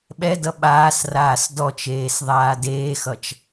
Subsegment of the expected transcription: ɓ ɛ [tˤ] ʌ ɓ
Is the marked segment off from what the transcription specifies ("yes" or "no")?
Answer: yes